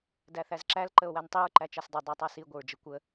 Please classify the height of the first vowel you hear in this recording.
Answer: low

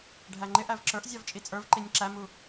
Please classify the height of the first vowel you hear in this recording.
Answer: low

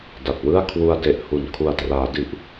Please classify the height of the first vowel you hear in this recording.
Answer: low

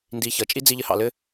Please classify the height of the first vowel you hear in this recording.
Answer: high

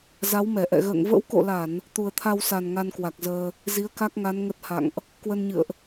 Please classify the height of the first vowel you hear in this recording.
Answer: low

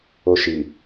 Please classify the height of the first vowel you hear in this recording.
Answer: mid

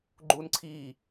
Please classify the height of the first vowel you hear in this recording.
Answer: high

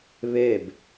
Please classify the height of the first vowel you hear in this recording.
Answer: mid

